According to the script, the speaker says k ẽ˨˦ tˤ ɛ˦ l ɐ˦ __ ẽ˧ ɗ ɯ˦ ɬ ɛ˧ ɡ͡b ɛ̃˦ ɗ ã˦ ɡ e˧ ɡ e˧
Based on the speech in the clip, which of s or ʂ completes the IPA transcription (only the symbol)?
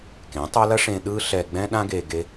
ʂ